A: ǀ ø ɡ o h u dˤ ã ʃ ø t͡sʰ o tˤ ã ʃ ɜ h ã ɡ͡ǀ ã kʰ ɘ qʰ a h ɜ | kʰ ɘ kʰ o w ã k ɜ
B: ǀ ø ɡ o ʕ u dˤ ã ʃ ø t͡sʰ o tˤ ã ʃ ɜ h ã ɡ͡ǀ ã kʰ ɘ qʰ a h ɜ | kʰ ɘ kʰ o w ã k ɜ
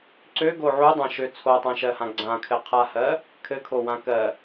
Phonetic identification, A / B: B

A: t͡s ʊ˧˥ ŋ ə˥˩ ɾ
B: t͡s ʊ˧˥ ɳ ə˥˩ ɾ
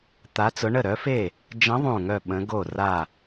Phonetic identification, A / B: B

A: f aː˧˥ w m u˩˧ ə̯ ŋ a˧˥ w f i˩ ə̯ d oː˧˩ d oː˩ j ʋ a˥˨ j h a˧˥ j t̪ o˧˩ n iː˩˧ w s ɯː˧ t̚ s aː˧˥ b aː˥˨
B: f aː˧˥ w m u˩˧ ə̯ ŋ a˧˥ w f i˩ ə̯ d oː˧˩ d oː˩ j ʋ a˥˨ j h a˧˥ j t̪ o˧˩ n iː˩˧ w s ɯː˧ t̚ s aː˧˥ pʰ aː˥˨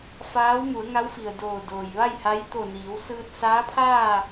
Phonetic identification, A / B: B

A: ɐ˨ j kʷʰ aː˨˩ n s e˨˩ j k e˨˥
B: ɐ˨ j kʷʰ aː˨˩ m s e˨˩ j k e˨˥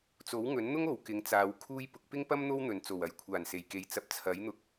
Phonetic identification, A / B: A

